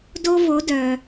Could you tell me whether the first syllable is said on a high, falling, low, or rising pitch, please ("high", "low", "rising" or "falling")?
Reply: high